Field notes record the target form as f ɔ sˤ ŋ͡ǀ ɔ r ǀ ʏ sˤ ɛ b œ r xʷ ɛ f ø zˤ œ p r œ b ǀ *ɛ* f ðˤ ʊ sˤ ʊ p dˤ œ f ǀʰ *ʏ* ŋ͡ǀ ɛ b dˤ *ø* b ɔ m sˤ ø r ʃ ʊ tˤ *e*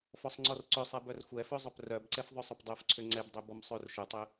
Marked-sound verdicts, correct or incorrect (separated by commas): correct, correct, correct, incorrect